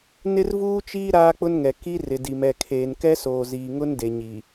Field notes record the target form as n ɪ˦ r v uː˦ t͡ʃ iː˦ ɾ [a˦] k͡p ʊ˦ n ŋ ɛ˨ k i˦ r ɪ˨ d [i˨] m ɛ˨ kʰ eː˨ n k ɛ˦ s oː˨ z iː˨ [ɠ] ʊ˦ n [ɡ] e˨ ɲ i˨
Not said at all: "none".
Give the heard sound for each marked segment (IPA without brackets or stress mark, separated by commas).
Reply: aː˦, i˨, ŋ, d